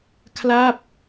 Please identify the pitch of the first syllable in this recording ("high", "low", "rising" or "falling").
falling